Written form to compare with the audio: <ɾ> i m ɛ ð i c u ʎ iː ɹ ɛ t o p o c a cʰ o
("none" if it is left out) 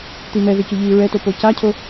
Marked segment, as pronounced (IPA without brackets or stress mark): t̪